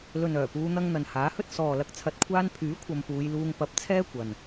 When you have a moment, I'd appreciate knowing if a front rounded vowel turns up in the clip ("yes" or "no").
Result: yes